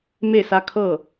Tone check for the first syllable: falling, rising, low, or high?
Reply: falling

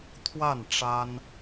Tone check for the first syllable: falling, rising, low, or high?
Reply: falling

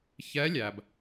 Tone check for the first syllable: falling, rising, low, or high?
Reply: rising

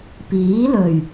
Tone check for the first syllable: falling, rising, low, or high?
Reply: rising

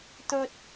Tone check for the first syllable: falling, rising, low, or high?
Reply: low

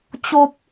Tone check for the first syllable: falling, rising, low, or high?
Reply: high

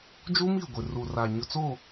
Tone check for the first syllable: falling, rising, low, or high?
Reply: high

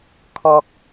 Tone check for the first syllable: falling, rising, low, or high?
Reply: low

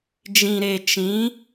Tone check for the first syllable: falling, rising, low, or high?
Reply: low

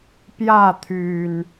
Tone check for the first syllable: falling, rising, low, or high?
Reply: falling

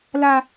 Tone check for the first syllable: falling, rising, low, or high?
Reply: high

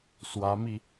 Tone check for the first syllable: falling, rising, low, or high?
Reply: rising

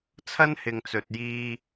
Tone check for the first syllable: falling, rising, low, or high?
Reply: high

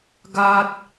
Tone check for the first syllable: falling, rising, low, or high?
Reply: high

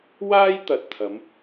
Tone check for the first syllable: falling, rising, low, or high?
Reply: high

